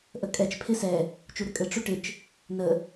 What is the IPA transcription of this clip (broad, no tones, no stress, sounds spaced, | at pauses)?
ʔ ə kʼ ɛ t͡ʃ pʰ ɪ s ɛ | t͡ʃ u ɾ ɘ kʼ ɘ ʈ͡ʂ u ʈ ɪ t͡ʃ | n ə